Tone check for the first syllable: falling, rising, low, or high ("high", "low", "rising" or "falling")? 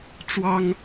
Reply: high